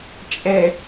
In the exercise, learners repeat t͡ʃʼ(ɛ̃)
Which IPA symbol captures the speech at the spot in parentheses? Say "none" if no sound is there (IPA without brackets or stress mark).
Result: ɛ